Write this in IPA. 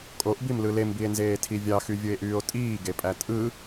kʼ o ʔ b i m l ɯ l e m b i e̯ n z eː tʰ i vʲ ɑ x y vʲ ɯ e̯ ʔ yː o̯ tʼ iː ɡ e pʼ æ tʼ ɯ

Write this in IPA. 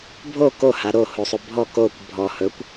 bʱ o k o h a ɾ o h o sˤ o bʱ ɔ k o kʷ bʱ ɔ h ɵ kʷ

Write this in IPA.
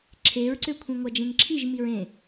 ǁʰ e ɹ ǀ ø kʷʰ ĩ ŋʷ a d͡ʒ ẽ ŋ ǁʰ i ʒ m i ɹ ẽ

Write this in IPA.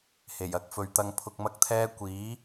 h e˨˩ j ɐ˥ k̚ f ɵ˨ ɥ t̪ ɐ˧ ŋ pʰ ʊ˧ k̚ m ɐ˥ k̚ t̪ʰ ɛː˥ kʷ iː˨˥

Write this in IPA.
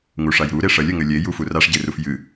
ŋ u ʂ a j ɾ u ɾ e ʂ ɐ lʲ ɘ ŋ ɘ lʲ e j u f u r a ʂ ɟ e r u f j ɨ

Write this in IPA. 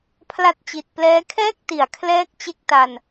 pʰ l a˦˥ t̚ t͡ɕ i˨˩ t̚ p l ɛː˦˥ kʰ ɛː˥˩ k̚ t i˨˩ a̯ kʰ l ɛː˦˥ k̚ t͡ɕ e˦˥ k̚ t a˧ n

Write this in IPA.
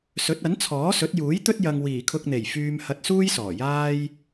s ɵ˨˥ t̚ ɐ˨˥ n t͡sʰ ɔː˨˥ s ɵ˨˥ t̚ j uː˨˥ j t̪ ɵ˥ t̚ j ɐ˧ ŋ w iː˨˩ kʰ ʊ˧ k̚ n̪ e˨˩ j f yː˧ m h ɐ˧ t̚ s uː˥ j s ɔː˨˩ j aː˥ j

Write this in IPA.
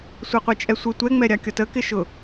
sʷ e qʷ e t͡ʃʼ ɛ sʷ ɯ tʷ ɛ ŋ͡m ɛ ɾʲ ɑ kʲ ɔ t ə k ɪ ʃ ʊ

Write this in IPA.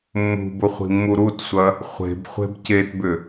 mː ṳ b ʊ χʷ i̤ mː u ɾ u t sʷ ɐ | χʷ e̤ b χʷ e̤ b c e t b ʏ

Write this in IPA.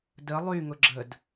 d ə lˠ y ŋ ʊ ɡ͡ǁ ə d

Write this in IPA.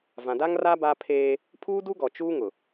v ã˨ d a˦ ŋ r a˦ b a˦ pʰ eː˦ | pʰ uː˦ d u˦ ɡ ɔ˨ t͡ʃ uː˦ ŋ ʊ˨

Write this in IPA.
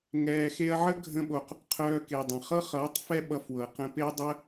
ŋ ɛː˨ x e˧ ɐ̯ ʕ ə˦ ɡʱ ə̃˦ ɓ o˧ q | qʰ œː˧ k e˨ dˤ ə̃˨ χ ɤ˦ χ ʌː˨˦ tˤ f ɛ˦ ɓ ʌ˧ f w ɤ˨ q ə̃˧ p e˦ dˤ ə˦

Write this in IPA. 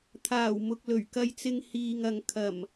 t̪ʰ aː˨˩ w m ʊ˨ k̚ l ɵ˨˩ ɥ k ɐ˧ j t͡s ɪ˧ ŋ h iː˨ ŋ ɐ˨ ŋ kʰ ɐ˨˩ m

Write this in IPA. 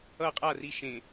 ʌ qʼ a r i ʃ ẽ

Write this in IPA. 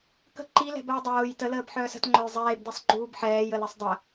k ə̤ ǃ i l ɛ̤ b əː dˤ oː j t ə l əː b ħ œː s ə̤ t ŋ͡ǃ œ j zˤ eː b d i sˤ ɡ͡ǃ uː b ħ ɛː j ə l e sˤ dˤ ə

